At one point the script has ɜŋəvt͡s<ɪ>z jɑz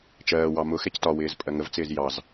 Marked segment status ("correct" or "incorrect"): incorrect